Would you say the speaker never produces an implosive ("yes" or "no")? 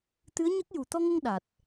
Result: no